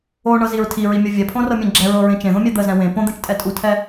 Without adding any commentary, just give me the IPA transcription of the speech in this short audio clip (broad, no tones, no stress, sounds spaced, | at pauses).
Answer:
o ɳ ɤ z i ɹ tʰ i ɹ i mʲ o vʲ ɛ pʰ õ r ɤ mʲ ɛ̃ ɡ͡ǁ ɛ ɹ ɤ ɹ ẽ t͡ʃ ẽ ð õ mʲ ɛ d̪ ə z ɛ̃ w ẽ p õ d̪ ɛ̃ t͡ʃ tʼ ɛ tʼ u tʰ ɛ